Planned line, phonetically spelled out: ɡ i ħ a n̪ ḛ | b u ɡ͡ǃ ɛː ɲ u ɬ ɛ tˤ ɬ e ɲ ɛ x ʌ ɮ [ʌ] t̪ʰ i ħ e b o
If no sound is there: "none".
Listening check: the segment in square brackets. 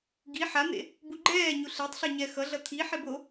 ʌ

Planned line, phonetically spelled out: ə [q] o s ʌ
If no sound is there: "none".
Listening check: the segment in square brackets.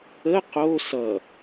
q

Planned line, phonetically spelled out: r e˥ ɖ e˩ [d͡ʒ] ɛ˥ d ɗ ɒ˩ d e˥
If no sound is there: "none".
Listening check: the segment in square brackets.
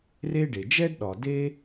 d͡ʒ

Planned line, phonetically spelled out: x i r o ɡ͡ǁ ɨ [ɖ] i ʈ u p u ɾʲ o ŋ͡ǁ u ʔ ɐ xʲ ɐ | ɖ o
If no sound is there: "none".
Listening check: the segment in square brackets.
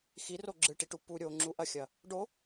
ʈ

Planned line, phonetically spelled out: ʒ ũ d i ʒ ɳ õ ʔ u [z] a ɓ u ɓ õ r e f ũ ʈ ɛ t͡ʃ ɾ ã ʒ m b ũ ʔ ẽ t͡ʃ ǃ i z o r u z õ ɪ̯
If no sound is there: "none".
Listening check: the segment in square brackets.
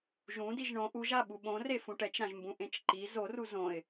ʒ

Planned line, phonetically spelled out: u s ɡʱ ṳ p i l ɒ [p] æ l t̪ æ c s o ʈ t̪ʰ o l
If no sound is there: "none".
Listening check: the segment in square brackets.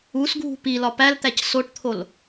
p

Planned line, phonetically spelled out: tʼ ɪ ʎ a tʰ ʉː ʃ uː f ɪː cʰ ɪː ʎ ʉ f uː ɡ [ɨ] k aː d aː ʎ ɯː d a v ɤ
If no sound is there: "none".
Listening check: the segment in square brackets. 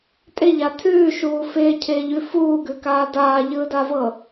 ʉ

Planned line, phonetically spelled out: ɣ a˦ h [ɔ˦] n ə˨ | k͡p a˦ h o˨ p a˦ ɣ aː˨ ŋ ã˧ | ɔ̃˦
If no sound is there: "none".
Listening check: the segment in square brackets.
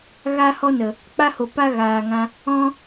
ɔ˦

